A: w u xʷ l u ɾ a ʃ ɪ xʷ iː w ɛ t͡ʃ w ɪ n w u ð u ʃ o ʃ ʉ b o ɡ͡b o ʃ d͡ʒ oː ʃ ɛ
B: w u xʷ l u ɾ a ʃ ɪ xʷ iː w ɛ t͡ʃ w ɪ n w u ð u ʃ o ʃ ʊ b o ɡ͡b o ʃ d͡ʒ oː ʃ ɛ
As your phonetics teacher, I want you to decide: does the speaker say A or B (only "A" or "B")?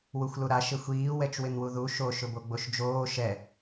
B